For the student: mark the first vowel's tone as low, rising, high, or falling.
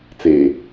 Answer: low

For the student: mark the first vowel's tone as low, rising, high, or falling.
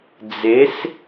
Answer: rising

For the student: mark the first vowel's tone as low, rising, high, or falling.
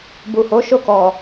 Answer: low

